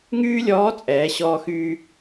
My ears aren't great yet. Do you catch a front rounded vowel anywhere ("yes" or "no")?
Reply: yes